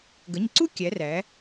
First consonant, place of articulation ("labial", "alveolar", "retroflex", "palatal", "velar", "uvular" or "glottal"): velar